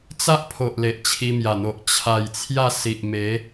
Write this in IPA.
t͡s a˦ ʔ pʰ o˨ ʔ l e˨ ʔ t͡ɕʰ i˧ m j a˨˩ n̪ o˨ ʔ t͡ɕʰ a˨˩ j t͡sʰ j a˥˧ s i˨ ʔ m e˨˦

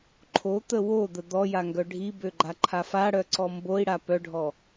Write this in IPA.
ǃʰ o t̪ ə w o d̪ ə d̪ ɔ j a ŋ ɡ œ ɖʱ i b ø ɡ͡ǃ a ǃʰ a f a ɽ œ ǀ ɔ m b o i̯ ɽ a p œ ɖʱ ɔ

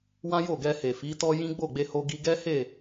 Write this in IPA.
w ã˦ j o˦˨ ɡ ɛ˧ h e˨ f i˨˦ t ɔ˦ j ĩ˦ ɡ͡b o˦˨ ɡ͡b e˧ h o˧ ɡ i˧ ɡ ɛ˦ h e˦˨

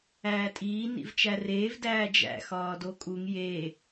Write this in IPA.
æː tʼ iː n ḭ v t͡ʃ æ r eː v d æː d͡ʒ æ̰ x ɒː d o kʼ u ŋ j e

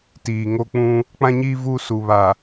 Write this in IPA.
t iː˨ ŋ o˦ k͡p ũ˦ | k͡p ã˦ ɲ iː˦ v u˦ s u˨ β a˨

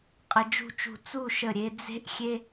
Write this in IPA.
qʼ ɘ˧ d͡ʒ ṳ˥˧ t͡ʃ ṳ˧ t͡s u˥˧ ʃ ə˧˩ ɾʲ e˧ d͡z e̤˥ ʔ xʲ e˥

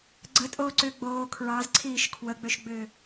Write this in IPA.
ɡ͡ǀ ə tʼ oː ǀ ʏː ɡ͡b oː kʰ ɹ ɑ z ǀʰ iː ʃ kʰ w ə ɡ͡b ø ʃ ɡ͡b ʏː

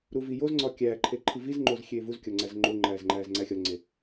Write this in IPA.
ɾ u v i j o z ŋ͡ǀ ɒ kʲ æː ǃʰ e ǃʰ i v i z ŋ͡ǃ o z xʲ eː v u z kʲ ɒ ŋ͡ǀ æ z ŋ͡ǃ o ŋ͡ǃ æː z ŋ͡ǃ æː z ŋ͡ǀ æ xʲ ɒ ŋ͡ǀ e

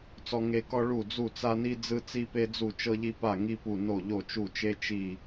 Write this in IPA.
t͡s ɔ˥ ŋ e˥ k ɔ˥ ɭ u˥˨ d͡z u˥˨ t͡s a˥ n i˥ d͡z ɯ˥ t͡s i˥ p e˥ d͡z u˥˨ t͡ʃ ɤ˥ ʎ i˥ p a˥˨ ŋ i˥ p u˥˨ n o˥˨ ʎ o˥˨ t͡ʃ u˥˨ t͡ʃ e˥ t͡ʃ i˥˨

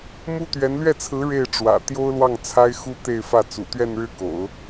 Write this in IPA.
m u˥ t̪ ɥ ɛ˧˥ n l ɥ ɛ˥˩ t͡sʰ ɹ̩˧˥ ɻ e˥˩ ɪ̯ ʈ͡ʂ w ä̰˨˩ t̪ j o˥ ʊ̯ l w ɑ˥˩ ŋ t͡sʰ a˥ ɪ̯ x u˥ t̪ e˥˧ ɪ̯ f ä˥˩ t͡s ṵ˨˩ t̪ ɥ ɛ˥˧ n ɻ ɻ̩˥˩ k o̰˨˩˦ ʊ̯

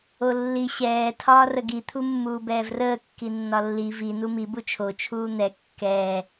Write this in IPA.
o lː i ɕ ɛː tʰ ɒː r ə ɡ i t̪ʰ u mː uː b ɛː v r əː kː i nː ɒ lː i v i n u m i b u t͡ʃʰ o t͡ʃʰ uː n̪ ɛ kː ɛː

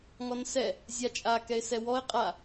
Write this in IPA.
ŋ ɔ n s ɛ | zʲ a t͡ʃʼ a k ɛ ɪ̯ s ɛ w ɔ ɪ̯ qʼ a

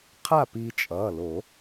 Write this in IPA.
qʰ a˥˨ p iː˧ t͡ʃʼ ʌː˩˧˩ l o˨˩˦

